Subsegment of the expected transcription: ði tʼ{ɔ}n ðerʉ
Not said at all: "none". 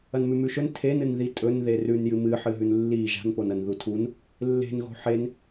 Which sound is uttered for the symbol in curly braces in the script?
ɵ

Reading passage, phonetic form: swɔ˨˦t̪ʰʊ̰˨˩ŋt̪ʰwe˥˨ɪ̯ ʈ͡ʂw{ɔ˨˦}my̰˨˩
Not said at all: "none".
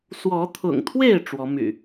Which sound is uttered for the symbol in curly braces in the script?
ɔ˨˦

